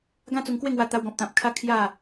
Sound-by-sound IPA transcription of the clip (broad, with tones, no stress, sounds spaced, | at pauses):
ɡ ã˦ t͡s u˧ ŋ k w e˥˧ ŋ w a˧ t̪ a˧ w ɡ ɔ̃˨ p̚ t̪ ã˨ p̚ kʰ a˦ kʰ j a˥˧